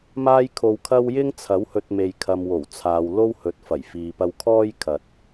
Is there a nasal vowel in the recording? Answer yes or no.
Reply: no